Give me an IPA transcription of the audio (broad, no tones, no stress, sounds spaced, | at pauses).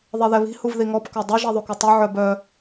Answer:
ðˤ e ð ɛ β i̤ h u v ð i ŋ ɔ p k œ dˤ i ʒ i ðˤ u k u tˤ œ ʕ œ b œ